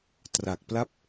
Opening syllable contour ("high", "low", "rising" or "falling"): low